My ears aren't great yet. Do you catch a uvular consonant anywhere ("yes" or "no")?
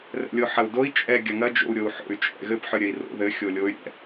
no